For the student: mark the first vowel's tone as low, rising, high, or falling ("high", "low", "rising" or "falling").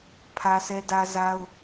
high